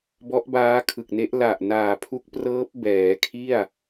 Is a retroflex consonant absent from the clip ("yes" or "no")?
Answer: yes